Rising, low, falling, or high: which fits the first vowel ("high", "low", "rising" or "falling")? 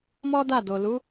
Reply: high